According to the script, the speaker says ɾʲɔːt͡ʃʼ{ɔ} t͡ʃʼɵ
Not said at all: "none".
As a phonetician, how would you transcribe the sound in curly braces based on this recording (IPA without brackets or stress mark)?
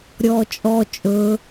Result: ɔ